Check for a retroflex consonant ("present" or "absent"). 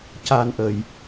absent